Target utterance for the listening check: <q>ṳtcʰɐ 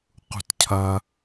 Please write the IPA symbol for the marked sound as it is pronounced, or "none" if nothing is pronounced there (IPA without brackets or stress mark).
q